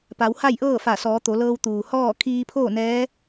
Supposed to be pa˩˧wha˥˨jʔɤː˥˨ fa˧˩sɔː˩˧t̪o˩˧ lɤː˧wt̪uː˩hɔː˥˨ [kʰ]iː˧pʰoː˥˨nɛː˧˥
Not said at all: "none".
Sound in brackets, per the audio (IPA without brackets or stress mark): kʰ